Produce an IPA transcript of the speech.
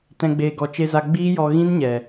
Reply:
t ɛ̃˨ ɡ͡b eː˨ ɡ ɔ˨ t͡ʃ e˧ z a˧ ɡ͡b iː˦ j ɔ˧ ɣ ĩ˦ n ɲ ɛ˨

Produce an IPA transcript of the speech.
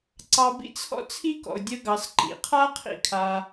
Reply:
ǀ ɑ˧ b ḭ˥ t͡sʰ ɔ̰˥ t͡sʰ i˥ k ɔ̰˩ ʊ̯ dʲ ə˧ ɡ ɑ˩ s ǃ ḭ˩ qʰ a˥ qʰ ḭ˧ kʰ a˩

